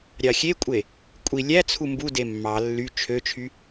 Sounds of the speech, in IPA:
ɾʲɑxʲekʷʼe | kʷʼi lʲæ t͡sʰumbude mːɑ lːy t͡ʃʰøt͡ʃʰy

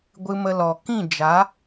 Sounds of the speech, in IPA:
ɡʷɨ˧mə˧lɔ˨ kĩ˦˨d͡ʒa˨˦

